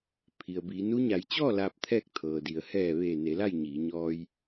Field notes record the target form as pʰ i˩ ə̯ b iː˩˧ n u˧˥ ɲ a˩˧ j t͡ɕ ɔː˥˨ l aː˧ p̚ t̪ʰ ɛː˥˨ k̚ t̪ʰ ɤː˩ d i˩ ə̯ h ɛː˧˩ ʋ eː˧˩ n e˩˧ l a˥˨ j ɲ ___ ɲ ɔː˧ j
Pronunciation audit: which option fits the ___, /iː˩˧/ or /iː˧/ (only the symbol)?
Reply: iː˩˧